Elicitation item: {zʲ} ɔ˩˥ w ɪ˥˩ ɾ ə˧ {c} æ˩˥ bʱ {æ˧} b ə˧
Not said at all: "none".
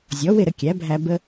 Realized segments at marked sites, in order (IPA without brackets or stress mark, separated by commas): zʲ, kʲ, æ˧